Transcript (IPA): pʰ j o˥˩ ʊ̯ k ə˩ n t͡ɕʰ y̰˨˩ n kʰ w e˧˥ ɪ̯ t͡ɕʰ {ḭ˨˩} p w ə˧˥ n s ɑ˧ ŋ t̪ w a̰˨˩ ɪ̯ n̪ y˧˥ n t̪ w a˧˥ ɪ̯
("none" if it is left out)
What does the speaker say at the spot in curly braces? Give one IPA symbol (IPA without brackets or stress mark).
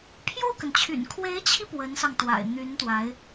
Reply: i˧